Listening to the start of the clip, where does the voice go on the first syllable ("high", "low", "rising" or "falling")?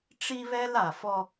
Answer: high